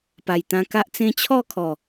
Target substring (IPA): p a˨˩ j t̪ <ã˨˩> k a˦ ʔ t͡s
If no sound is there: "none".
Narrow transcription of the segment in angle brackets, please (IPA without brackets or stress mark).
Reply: ã˧